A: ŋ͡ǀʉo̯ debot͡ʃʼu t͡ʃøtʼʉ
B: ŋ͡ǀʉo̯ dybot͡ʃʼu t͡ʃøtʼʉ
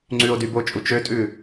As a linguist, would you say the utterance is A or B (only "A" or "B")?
B